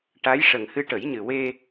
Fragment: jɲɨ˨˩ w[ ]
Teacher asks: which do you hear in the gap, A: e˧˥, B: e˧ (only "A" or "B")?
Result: B